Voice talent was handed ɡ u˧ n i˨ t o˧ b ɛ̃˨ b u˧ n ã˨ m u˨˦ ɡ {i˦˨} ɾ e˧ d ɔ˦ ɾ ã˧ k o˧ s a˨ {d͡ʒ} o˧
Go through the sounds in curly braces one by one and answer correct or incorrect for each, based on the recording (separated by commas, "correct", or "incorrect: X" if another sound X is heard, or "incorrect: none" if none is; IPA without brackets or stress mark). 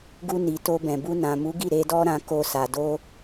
correct, incorrect: d